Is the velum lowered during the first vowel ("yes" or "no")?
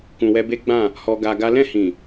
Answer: yes